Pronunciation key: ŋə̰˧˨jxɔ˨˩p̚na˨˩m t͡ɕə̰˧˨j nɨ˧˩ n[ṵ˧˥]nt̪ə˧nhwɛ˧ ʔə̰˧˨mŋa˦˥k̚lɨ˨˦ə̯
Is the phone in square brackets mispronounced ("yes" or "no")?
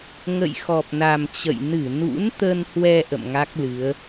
no